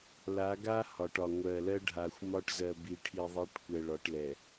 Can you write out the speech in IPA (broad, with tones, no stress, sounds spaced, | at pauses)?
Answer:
l a˨˦ ɡ a˦ h ɒ˨ ʈ ɒ˨ ŋʷ ɜ˨ l ɜ˦ ɖʱ a˨ xʷ m ɒ˦ ʈ z ɜ˨ b i˨ ʈʰ i˨ ðˤ i˨˦ ʈ kʷ ɛ˨ ɭ ɒ˨˦ ʈ l ɛ˨